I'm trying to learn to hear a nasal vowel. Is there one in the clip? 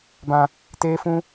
yes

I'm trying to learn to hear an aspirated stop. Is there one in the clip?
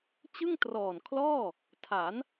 yes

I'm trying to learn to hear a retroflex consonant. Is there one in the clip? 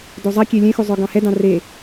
no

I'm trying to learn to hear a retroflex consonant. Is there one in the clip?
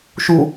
no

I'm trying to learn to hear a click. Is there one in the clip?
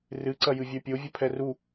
yes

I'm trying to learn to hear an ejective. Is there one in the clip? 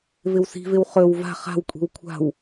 yes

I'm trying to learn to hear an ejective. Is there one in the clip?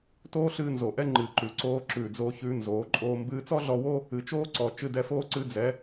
yes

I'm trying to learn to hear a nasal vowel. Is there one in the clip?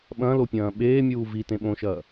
yes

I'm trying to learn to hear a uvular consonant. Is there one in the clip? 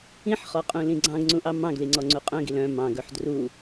yes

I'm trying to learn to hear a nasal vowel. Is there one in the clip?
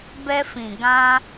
yes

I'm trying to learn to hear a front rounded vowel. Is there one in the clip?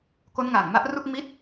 no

